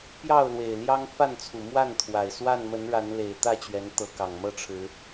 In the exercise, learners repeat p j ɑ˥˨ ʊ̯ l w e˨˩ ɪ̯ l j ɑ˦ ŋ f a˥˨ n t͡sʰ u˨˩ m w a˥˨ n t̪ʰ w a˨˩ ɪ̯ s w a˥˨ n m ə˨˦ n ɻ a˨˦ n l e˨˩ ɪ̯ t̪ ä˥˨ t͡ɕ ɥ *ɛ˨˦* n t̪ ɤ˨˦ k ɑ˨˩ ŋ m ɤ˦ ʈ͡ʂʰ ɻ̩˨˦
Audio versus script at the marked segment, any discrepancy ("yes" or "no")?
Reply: no